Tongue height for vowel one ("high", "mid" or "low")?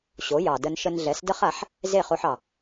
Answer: mid